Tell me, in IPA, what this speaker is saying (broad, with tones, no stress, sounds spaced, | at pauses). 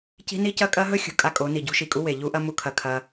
c i̤˦ n i˦ c ɐ˦ kʼ ɐ˦ ɦ ɵ˦ xʲ ṳ˨ kʼ a˦ kʼ o˨˦ n i˨ ɟ ṳ˦ ʃ i˨ kʼ u˦ w e˨ ʎ u˦ ʔ ɐ˦ m u˨ kʰ ɐ˨ kʰ ɐ˦